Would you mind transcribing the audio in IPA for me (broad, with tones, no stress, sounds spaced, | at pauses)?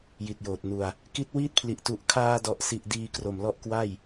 j i˨˩ t̚ j oː˨˩ t̚ n u˧ a̯ | k i˦˥ t̚ w iː˥˩ t̚ pʰ l i˨˩ ʔ t u˨˩ ʔ kʰ aː˧ d ɔ˨˩ ʔ s i˨˩ ʔ d iː˧ k r o˨˩ m l ɔ˦˥ ʔ k w a˥˩ j